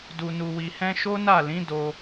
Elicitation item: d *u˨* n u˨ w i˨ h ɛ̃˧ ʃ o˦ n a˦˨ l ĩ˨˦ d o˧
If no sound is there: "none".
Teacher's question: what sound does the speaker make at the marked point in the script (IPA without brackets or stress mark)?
u˨